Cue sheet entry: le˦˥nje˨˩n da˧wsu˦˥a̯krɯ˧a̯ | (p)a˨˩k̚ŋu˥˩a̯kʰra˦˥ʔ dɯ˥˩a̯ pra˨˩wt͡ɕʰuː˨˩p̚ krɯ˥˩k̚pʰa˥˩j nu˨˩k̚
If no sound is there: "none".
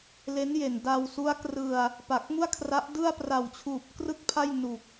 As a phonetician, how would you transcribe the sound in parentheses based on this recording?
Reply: p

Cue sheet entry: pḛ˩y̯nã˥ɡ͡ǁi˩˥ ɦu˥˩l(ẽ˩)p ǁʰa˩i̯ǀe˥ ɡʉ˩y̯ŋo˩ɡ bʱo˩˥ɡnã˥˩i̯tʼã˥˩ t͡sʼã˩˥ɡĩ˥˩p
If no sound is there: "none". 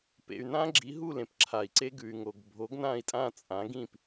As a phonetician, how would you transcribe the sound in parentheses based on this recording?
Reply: ẽ˩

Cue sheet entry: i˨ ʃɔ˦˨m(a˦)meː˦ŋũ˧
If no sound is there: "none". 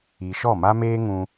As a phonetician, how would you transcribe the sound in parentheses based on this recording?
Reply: a˦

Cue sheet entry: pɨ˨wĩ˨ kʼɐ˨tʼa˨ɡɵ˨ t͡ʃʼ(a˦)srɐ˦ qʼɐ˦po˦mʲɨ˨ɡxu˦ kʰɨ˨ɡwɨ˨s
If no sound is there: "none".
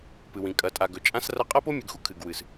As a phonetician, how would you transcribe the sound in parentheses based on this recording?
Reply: ã˦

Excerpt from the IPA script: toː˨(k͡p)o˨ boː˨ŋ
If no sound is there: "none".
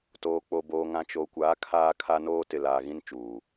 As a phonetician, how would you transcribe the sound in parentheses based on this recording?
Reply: k͡p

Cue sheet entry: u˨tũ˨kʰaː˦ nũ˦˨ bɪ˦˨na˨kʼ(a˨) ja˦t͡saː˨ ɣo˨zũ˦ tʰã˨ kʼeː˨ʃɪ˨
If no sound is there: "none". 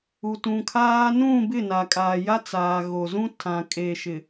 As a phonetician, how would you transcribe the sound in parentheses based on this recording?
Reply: aː˨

